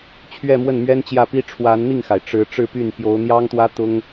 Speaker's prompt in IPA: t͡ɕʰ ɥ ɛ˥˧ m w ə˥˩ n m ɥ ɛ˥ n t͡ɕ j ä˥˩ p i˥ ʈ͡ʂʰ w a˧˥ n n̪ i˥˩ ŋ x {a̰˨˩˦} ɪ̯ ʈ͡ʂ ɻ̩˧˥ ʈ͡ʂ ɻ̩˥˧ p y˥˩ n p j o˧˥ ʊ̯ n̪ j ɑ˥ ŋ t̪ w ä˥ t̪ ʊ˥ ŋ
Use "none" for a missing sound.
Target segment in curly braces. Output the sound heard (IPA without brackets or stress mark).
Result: a˩